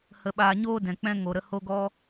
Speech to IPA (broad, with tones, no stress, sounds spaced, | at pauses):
h ə˧ ɓ aː˧ ɲ oː˦ d ɛ̃˨ k͡p ɛ̃˦ ŋ o˨ ɾ ə˧ h o˦ ɡ ɔ˦